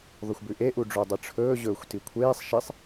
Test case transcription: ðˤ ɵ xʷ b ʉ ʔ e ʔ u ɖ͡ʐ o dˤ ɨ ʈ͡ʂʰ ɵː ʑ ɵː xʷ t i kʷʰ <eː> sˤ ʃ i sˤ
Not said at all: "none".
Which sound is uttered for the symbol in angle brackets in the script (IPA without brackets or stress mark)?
eː